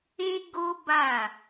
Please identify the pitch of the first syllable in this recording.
high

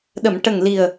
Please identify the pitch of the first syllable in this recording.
low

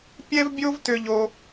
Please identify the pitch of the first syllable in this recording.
high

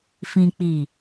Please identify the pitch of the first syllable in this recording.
low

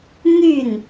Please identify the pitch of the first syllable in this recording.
falling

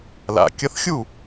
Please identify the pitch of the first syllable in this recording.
low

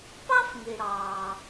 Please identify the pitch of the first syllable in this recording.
high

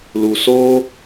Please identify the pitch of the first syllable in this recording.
low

